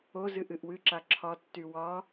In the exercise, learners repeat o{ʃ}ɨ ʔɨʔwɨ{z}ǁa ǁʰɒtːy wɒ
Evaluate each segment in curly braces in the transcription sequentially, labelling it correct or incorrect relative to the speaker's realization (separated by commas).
incorrect, incorrect